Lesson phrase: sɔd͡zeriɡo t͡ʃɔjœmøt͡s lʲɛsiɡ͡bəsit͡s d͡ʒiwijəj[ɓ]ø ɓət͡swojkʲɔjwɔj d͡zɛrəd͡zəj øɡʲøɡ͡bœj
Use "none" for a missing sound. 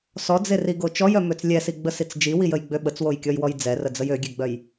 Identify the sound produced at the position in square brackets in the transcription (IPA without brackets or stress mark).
ɡ͡b